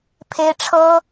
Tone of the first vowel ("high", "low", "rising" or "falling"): high